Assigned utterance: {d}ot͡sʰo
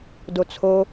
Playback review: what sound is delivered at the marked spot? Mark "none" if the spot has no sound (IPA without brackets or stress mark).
d